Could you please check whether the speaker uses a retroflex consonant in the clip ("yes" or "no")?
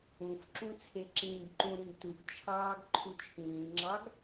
no